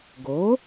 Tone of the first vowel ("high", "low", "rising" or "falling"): rising